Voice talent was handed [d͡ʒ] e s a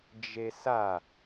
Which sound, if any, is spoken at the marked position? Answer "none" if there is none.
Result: d͡ʒ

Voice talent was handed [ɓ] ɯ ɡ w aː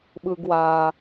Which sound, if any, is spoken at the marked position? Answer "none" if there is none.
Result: ɓ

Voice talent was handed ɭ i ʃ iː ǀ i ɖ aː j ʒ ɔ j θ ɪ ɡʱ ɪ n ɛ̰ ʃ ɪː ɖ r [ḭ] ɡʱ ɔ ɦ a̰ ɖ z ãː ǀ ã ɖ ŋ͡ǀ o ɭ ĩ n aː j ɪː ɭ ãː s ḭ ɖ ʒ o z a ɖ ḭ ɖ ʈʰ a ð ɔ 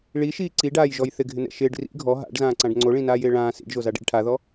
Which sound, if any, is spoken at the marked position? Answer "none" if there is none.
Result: ḭ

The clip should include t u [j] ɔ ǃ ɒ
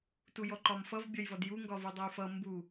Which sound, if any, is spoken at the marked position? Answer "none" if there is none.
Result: j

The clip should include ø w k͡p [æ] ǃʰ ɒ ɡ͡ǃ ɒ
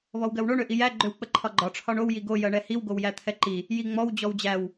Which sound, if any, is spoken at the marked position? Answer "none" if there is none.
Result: ə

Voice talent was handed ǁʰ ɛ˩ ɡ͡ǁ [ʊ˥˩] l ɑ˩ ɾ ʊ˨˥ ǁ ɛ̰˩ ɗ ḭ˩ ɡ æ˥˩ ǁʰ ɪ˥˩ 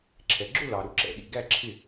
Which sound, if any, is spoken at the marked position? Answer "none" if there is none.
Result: ʊ˥˧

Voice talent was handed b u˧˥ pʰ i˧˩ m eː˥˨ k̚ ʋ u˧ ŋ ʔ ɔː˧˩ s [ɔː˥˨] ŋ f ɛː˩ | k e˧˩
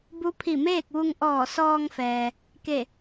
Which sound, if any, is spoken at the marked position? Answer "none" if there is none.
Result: ɔː˧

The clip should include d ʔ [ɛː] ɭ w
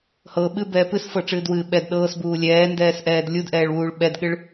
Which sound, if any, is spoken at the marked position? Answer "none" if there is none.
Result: ɛː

